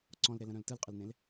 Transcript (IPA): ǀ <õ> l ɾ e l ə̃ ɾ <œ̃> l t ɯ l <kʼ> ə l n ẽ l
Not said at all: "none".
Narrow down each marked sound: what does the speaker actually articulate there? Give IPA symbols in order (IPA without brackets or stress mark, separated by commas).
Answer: ɔ̃, œ̃, qʼ